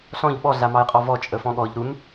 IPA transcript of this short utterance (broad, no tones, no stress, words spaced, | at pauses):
ɬɔ̃ʎ ɓɔɮamɑjqʼɔ vɔt͡ʃʼəfɔ̃ ɠɔʎ ɾun